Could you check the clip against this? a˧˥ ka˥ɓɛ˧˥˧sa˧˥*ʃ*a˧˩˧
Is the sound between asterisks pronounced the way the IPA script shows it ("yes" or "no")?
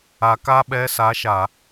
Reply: yes